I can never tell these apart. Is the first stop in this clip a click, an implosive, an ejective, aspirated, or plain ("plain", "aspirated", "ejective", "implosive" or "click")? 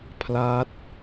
aspirated